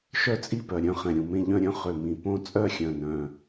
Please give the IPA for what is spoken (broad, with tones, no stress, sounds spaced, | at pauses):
ʃ œ˥˨ t͡sʼ i˥˨ p œ˨˩ ɾʲ œ̃˥˨ χ ɛ̃˨˩ ɾʲ ũ˨˩ m ẽ˥˨ ʎ œ̃˥˨ ɾʲ œ̃˥˨ χ ø˨˩ m ĩ˨˩ p õ˥˨ t͡sʼ œ˥˨ xʲ œ̃˨˩ n œ̃˨˩